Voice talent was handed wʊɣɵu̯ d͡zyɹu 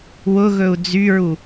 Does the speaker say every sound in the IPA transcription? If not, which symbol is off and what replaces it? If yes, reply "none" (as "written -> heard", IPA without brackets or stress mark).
none